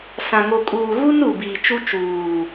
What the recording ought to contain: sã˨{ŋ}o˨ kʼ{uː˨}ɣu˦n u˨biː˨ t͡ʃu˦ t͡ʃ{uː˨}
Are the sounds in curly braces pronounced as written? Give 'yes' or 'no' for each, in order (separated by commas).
yes, yes, yes